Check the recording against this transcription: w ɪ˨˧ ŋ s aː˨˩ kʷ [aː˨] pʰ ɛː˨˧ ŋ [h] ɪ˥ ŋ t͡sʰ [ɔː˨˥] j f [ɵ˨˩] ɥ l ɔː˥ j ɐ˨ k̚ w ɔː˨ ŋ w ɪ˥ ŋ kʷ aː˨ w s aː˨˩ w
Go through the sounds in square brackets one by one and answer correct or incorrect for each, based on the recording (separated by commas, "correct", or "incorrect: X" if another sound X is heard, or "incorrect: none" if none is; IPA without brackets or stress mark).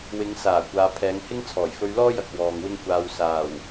correct, correct, incorrect: ɔː˨˩, incorrect: ɵ˧